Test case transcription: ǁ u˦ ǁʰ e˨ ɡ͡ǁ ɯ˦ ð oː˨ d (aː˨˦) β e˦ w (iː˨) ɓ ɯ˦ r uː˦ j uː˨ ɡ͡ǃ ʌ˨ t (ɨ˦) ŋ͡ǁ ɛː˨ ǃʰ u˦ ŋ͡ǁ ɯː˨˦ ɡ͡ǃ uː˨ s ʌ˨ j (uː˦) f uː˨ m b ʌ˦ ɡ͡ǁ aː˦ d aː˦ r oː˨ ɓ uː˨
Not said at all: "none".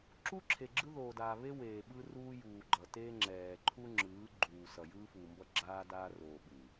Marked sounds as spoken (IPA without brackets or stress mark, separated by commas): aː˨, eː˨, e˦, ɯː˦